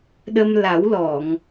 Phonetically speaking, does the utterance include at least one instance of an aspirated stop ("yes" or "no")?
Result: no